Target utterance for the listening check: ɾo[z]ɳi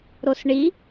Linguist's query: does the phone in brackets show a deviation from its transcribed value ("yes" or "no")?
yes